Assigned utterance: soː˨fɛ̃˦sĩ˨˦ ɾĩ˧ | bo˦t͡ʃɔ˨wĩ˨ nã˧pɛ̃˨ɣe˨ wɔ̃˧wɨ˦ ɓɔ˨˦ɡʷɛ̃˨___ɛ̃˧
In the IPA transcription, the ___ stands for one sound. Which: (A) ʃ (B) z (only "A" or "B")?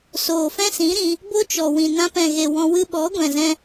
B